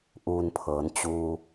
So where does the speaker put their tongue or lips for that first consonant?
throat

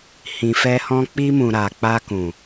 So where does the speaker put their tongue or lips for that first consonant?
throat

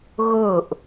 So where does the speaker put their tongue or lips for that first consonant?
velum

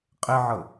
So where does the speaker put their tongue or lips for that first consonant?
uvula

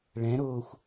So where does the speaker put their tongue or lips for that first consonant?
retroflex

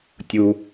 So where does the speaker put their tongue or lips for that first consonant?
tongue tip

